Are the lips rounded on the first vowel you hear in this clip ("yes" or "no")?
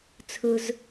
yes